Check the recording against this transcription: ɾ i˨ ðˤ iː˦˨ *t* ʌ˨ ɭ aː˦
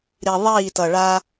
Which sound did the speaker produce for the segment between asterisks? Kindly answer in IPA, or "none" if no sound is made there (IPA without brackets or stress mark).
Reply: t